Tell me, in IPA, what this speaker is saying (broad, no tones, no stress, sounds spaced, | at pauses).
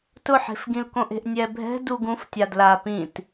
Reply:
t ʊ ħ e̤ f ɡ ĩ l k õ ʔ e̤ ʔ nʲ ɛ bʱ ɛ̤ d u ɡ ũ f tʲ a d l a p ĩ t